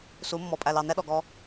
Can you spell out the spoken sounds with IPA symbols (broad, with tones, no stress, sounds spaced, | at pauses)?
s u˨˦ mː ɔ˨ pʼ æ˨ l ɑ˨ n ɛ˦ ɗ ɔ˨ ɡ ɔ˧